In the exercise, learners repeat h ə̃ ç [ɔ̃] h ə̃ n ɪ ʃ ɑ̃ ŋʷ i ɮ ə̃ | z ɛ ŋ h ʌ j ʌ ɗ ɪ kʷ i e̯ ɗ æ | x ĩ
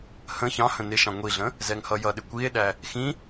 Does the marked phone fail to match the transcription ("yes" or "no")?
yes